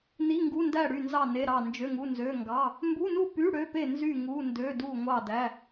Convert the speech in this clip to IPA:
n i˧˥˧ ŋ ɡ u˧˥˧ n d æ˥˨ ɽ y˥˨ n z ɑ˥˨ n e˧˥˧ ɾ ɑ˥˨ n d͡ʒ ø˧˥˧ ŋ u˧˥˧ n z ø˧˥˧ ŋ ɡ ɑ˧˥˧ | m b u˧˥˧ n u˥˨ p y˧˥˧ ɽ ø˧˥˧ p e˥˨ n z y˥˨ ŋ u˧˥˧ n d ø˧˥˧ d u˥˨ ŋʷ ɑ˥˨ d æ˧˥˧

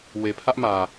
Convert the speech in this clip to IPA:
w e˨ pʰ ä˦ ʔ m ä˨

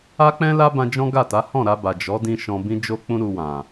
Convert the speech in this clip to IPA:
a˦ k͡p ɛ̃˦ l a˦ b ã˧ d͡ʒ ɔ̃˦ ɡ a˦˨ t a˨˦ h ɔ̃˦˨ ɾ a˧ b a˨ d͡ʒ ɔ˨˦ d ĩ˧ ʃ ɔ̃˧ b ĩ˦ d͡ʒ o˦ k͡p ũ˦ ɾ u˧ w ã˨

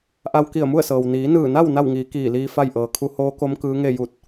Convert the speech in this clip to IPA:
ʔ a˧ w k i˧˩ ə̯ m u˥˨ ə̯ s ɤː˩ w n iː˩˧ n ɯː˧˩ n a˥˨ w n a˥˨ w ŋ iː˩˧ k iː˧˩ l iː˧ f a˥˨ j ʔ ɤː˩ kʰ u˧˥ h oː˧˥ k o˧˥ m k ɯː˧˥ ŋ e˥˨ j u˧˩ t̚

